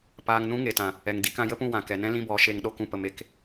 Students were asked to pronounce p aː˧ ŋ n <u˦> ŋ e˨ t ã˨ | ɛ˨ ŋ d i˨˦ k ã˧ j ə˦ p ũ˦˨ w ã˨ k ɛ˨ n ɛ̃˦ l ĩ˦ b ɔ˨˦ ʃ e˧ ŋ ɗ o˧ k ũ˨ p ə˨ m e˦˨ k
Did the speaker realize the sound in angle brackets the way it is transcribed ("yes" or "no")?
no